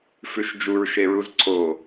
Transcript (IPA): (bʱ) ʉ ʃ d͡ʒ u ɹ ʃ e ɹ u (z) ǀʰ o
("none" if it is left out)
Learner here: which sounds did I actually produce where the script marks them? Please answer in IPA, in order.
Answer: f, z

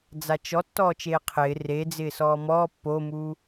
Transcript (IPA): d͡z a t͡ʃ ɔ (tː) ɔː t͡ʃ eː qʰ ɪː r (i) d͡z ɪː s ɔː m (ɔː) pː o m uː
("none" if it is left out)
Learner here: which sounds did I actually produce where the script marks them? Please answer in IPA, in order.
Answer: tː, e, ɔː

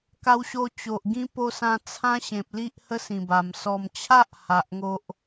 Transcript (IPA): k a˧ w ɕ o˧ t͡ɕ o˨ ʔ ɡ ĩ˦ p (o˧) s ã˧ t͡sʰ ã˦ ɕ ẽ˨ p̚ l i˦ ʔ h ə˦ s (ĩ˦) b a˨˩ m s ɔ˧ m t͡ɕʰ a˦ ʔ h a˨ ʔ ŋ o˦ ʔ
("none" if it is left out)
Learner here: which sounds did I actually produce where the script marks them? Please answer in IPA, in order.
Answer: o˧, ĩ˨˩

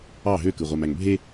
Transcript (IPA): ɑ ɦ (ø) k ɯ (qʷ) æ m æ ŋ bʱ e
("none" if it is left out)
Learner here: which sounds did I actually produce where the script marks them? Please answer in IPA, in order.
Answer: ø, ʁʷ

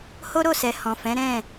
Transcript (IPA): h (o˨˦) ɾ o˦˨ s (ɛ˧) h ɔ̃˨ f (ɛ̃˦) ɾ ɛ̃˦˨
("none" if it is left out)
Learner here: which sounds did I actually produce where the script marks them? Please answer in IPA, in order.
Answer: o˦, ɛ˨, ɛ̃˨˦

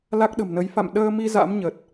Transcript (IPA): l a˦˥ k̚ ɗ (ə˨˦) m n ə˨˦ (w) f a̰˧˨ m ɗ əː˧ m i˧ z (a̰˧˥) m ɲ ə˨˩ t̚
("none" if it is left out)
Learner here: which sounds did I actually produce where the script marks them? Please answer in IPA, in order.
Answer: ə̤˨˩, j, a̰˧˥

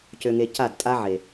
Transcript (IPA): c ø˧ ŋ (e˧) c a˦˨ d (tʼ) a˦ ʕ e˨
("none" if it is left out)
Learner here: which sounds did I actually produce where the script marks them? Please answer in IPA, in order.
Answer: e˧, tʼ

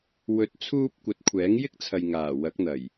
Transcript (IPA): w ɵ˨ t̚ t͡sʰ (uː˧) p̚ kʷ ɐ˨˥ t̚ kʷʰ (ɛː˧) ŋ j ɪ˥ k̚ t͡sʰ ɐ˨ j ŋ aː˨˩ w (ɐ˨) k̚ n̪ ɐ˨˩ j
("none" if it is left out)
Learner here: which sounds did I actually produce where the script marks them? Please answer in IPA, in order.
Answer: uː˧, ɛː˨˥, ɐ˨˥

